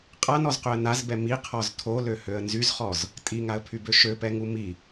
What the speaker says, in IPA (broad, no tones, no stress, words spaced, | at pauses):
qʼanɔzqøə̯ nazbɛ miqʰɔz tʰoløhøə̯ nzyzχɔz | tʼiŋaə̯pʰybø ʃøpɛŋu mi